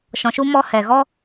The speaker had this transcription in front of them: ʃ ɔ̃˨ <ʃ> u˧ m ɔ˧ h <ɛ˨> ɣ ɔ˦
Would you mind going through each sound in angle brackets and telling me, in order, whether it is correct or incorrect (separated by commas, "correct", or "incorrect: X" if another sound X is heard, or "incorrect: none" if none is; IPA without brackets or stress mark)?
correct, correct